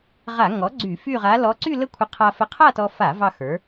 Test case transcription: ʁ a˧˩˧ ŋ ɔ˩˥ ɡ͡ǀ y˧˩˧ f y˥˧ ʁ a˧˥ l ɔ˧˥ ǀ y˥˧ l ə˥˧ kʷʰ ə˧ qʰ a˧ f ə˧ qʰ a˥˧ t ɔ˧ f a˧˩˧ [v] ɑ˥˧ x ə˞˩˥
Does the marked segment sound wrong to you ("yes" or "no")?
no